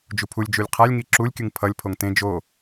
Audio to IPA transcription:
d͡ʒ u pʰ u lʲ d͡ʒ u lʲ qʰ a lʲ ŋ i ǁ u lʲ kʲ ɯ ŋ pʰ ʌ lʲ pʰ o ŋ t ẽ d͡ʒ o

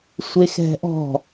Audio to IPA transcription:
sʷ e x ɛ̤ ʔ ɔ̤

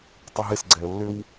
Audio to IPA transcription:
tˤ ʊ ɦ ɪ s ɡ͡ǀ ɛ ə̯ lː ʏ w

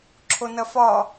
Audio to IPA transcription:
ǁʰ o n ɐ f ɒ

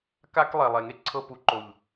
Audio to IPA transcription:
k a˧ k lˠ e˨ lˠ e˨ ŋ e˦ ǀʰ ɤ˧ p u˨ ǃ o˨ ʎ

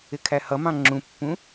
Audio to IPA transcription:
ɪ kʰ æ h ʌ m ɑ̃ ŋ͡ǁ ũ pː ũ

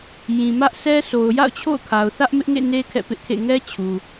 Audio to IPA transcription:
j ĩ˨ m ä˦ ʔ sʰ ɛ˦ sʰ o˨ ʊ̯ j a̰˦˨ ʊ̯ t͡ɕʰ o̰˦˨ ʊ̯ kʰ a˨ ʊ̯ θ ä˦ ʔ m ɪ˦ ʔ ŋ ḛ˦˨ n e˦ kʰ ɛ̰˦˨ p ɪ˦ ʔ kʰ ḛ˦˨ ŋ ɛ˦ t͡ɕʰ u˨

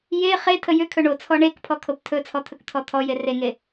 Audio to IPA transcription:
j e χ e tʰ ə j ʏ kʰ ɵ ɳ o t͡sʰ ɔ ɳ e k pʰ ɔ kʰ o p tʰ ɵ t͡sʰ ɔ t̪ʰ ɵ k t̪ʰ ɔ t̪ʰ ɔ j e r e ŋ e

